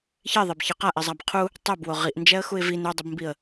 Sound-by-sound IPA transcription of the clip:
çeðˤebçɪ qaʔizˤab qʰu | tˤɛbwo ʁiʔnd͡ʒɛə̯xuɪ̯ vin udˤubmbiə̯

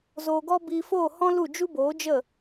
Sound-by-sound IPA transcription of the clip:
zoː˧ɡɔ˦ biː˧foː˦˨ hɔ̃˦lu˦˨ d͡ʒu˦boː˨˦d͡ʒə˦˨

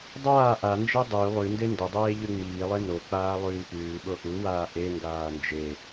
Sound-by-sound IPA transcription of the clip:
dˤaː ʔand͡ʒe dˤuy̯ lˠʉnde ndədˤeː ʎʉŋ͡miːlˠe nok͡paː lˠʉːpʉːɓo ʔuwaː ʔeŋɡaː nd͡ʒe

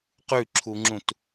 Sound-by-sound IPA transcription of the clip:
qʉǁʰuŋ͡ǁũt

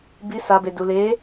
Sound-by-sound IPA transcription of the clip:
bi sabe dule

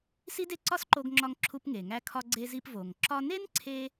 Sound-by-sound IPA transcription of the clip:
si˥de˥ ǀɒ˥sǃo˧ɡŋ͡ǁɒ˧ŋ ǁʰu˧pŋe˩ŋæ˧kʰɒ˧ ɡ͡ǀe˧zi˧p vo˩ŋǁɒ˧ne˥nǀʰe˧

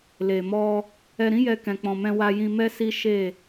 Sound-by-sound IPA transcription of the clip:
le˨mɔ˧ | ɛ˧ɾĩ˦ jɛ˧kɛ̃˨k͡pɔ̃˨mɛ̃˧ wa˧jĩ˧ mɛ˦si˦ʃe˦˨

